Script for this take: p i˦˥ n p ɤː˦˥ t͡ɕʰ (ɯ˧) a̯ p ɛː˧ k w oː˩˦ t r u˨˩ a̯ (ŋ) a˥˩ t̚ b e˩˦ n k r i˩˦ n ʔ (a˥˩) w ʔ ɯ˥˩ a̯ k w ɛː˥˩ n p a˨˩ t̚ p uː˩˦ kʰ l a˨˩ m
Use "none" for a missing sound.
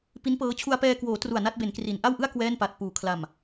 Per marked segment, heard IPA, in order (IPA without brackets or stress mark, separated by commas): u˧, n, a˥˩